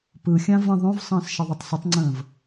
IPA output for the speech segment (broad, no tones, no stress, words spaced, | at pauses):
pɯxʲã və̃ ðˤõvsˤə̃ːs ʃəðˤɨtˤsɪtˤŋ͡ǀə̃ːv